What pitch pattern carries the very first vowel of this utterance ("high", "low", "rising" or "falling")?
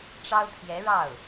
high